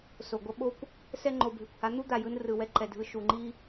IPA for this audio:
s o˨ ɡʷ ʌ˦ ɓ o˦ kʷ | s ɛ˦ ŋ͡ǃ o˨ bʱ e˨ kʷ h a˨˦ n̪ u˦ d̪ a˧ j ɯ˦ n r ɯ˨ w ɛ˦ ǃ ɛ˨ dʱ ɯ˧ ʃ u˨ ŋ͡ǃ i˦

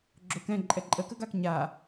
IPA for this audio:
ɡ͡ǁ o k ɛ̃ ǃʼ ɛ ǃʼ ə k ə ɡ a k ɲ a

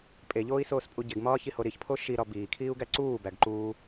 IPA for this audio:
pʼ e ʎ oː i̯ s oː s pʼ u ɟ e ɡ m ɒː ç i h o ɾ i ç pʰ o ʃ i ɾ ɒ b iː kʰ iː u̯ ɡ æ ǀ uː b æ ɡ ǃ uː

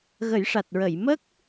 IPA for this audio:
ɣ ə˨˩˦ j ʂ a˨˩ t̚ ɹ ə˨˩˨ j m ə˦˥ k̚

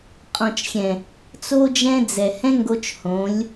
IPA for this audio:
qʼ ɔ̃˨ t͡ʃ xʲ ɛ̃˨ | t͡s o˦ d͡ʒ ɛ̃˦ d͡z ɛ˨ h ɛ̃˦ ŋ ɡ o˧ t͡ʃ h õ˨˦ lʲ

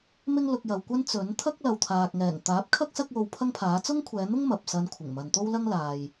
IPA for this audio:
m ɪ˥ ŋ l ʊ˧ k̚ j ɐ˨ w kʷ ɐ˥ n t͡s ɵ˨˥ n t̪ʰ ɐ˥ k̚ l ɐ˨ w t̪ʰ aː˨ k̚ ŋ ɛː˨˩ ŋ t̪ aː˨˥ p̚ kʰ ɐ˥ k̚ s ɐ˥ k̚ w o˧ w pʰ ɐ˥ ŋ pʰ aː˨˥ t͡s ʊ˥ ŋ kʷʰ ɛː˨˧ n̪ ʊ˥ ŋ m ɐ˨ p̚ s ɐ˧ n kʷʰ ɪ˨˩ ŋ m ɐ˨ n t̪ o˥ w l ɐ˥ ŋ l aː˨ j

